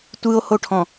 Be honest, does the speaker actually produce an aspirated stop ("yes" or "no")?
yes